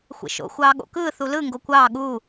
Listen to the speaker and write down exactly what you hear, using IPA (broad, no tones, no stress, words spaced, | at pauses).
xʷḛʃo̰ xʷɑːɠo̰kɯː θulɯ ŋɡokʷɑː ɠu